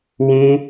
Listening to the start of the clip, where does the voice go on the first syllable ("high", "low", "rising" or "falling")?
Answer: high